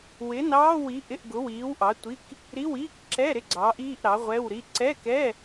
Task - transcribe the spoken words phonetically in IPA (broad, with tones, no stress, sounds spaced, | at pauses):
w ɪ˨˥ n ɑː˧˥˧ w i˨˥ ʔ ɪ˧˥˧ ʔ ɡ ʊ˨˥ w iː˨˥ w ʔ ɑ˨˥ tʷ i˧˥˧ k | ɾ i˧˥˧ w iː˧˥˧ k ǁ ɛ˧˥˧ ɾ ɪ˧˥˧ ɡ͡ǀ ɑː˨˥ ʔ iː˧˥˧ ʔ ɾ ɑ˨˥ ʁʷ ɛ˧˥˧ w ɾ i˧˥˧ ǀ ɛ˧˥˧ k ɛ˧˥˧